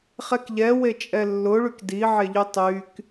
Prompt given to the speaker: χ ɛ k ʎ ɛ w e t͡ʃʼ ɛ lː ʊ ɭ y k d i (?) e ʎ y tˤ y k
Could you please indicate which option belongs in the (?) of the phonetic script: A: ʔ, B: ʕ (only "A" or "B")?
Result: B